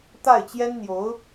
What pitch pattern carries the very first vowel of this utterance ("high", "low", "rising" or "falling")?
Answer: falling